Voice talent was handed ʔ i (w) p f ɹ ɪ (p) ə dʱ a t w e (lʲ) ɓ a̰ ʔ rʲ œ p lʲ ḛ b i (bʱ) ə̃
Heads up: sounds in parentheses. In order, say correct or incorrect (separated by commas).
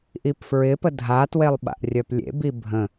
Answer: incorrect, correct, incorrect, correct